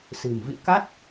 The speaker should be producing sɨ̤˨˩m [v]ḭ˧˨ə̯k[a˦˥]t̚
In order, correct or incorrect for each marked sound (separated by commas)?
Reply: correct, correct